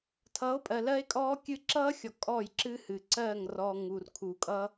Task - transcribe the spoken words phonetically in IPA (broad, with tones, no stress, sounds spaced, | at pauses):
tʰ ʌ˨˦ o̯ pʼ ɜ˨ l ɜ˦ e̯ kʼ ɔː˦ kʲ ɨ˦ ǁ ʌː˦ xʲ ɔ˨ kʼ ɔ˦˨ j ǁ ɨ˦ h ɨ˨ ǀ ɜ˦˨ ŋ r ɔ˦ ŋ u˨ r kʰ u˨ kʼ ʌ˦